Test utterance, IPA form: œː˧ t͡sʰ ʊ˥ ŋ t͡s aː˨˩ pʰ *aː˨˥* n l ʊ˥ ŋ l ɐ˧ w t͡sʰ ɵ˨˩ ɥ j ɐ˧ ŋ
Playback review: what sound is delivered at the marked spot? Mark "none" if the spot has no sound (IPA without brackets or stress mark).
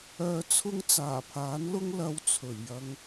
aː˨˥